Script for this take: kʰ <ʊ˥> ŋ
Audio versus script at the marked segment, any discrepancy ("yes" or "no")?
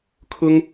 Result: no